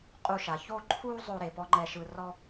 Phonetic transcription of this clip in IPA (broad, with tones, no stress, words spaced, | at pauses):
qʼu˧ʃa˨ ço˦ǃʰuː˦ zˤo˧ ɾe˨pɔ˦ŋ͡ǃɛ˧ʃɯ˧ rɔ˦